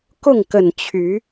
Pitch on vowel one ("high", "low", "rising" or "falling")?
falling